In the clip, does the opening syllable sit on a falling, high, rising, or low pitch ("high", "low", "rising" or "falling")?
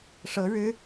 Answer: rising